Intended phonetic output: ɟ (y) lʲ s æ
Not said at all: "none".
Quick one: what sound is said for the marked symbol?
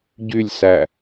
y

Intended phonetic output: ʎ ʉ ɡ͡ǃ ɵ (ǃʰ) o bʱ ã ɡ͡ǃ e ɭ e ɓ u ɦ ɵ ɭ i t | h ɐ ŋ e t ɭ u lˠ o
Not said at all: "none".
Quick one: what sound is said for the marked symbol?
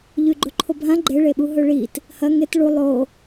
ǃʰ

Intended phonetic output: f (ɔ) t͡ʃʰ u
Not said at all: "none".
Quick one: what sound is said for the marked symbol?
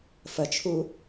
ə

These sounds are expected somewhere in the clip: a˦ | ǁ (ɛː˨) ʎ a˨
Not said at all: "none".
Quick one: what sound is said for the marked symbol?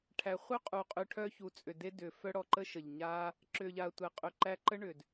ʏː˨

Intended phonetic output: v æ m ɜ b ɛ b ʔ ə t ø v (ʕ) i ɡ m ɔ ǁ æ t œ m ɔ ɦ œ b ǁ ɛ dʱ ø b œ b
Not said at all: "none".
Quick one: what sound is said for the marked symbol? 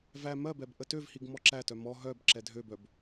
h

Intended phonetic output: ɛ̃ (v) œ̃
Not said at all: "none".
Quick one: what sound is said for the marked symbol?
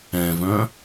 v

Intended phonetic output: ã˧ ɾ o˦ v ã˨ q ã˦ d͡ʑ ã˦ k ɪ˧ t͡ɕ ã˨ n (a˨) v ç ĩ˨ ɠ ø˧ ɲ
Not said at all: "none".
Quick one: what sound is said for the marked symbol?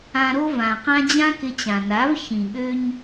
a˨˦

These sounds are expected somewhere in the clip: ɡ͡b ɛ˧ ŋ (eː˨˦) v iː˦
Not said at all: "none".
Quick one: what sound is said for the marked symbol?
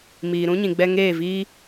eː˦˨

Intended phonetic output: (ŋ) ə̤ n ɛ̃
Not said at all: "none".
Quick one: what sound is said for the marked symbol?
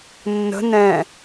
nː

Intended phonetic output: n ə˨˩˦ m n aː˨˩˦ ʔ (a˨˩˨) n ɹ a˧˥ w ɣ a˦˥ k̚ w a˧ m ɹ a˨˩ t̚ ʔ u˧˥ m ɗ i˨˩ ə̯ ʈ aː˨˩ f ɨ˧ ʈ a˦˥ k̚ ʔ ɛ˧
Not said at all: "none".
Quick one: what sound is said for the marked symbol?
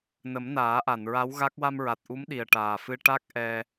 a˨˩˨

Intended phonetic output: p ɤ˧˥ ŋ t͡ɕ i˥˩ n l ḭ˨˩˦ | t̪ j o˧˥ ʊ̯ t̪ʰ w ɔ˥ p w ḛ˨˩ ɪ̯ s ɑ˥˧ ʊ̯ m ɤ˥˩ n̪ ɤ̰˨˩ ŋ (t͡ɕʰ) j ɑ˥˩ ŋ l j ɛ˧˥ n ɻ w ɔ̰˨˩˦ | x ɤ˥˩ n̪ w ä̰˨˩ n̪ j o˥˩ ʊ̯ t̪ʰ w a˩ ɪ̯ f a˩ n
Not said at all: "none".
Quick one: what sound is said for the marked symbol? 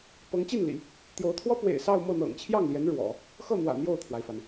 t͡ɕʰ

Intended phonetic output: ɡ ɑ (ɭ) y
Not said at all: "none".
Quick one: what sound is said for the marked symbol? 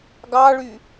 ɭ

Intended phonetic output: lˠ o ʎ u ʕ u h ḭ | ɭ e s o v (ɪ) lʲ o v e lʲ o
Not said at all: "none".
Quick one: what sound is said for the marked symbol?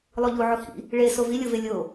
i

